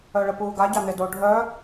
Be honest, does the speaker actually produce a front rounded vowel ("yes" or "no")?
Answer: yes